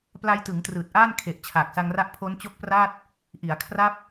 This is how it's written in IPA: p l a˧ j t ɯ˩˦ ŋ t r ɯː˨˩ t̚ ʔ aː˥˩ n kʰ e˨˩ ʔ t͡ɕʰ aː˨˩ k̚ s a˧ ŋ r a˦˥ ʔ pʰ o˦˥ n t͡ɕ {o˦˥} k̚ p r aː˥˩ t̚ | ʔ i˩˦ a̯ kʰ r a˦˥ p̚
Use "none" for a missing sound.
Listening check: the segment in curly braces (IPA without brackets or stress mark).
o˦˥